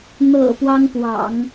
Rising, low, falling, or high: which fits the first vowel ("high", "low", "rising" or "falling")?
low